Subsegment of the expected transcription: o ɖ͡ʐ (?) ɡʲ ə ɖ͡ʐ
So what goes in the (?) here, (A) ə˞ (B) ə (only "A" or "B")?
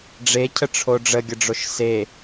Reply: B